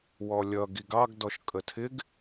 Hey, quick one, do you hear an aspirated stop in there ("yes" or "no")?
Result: yes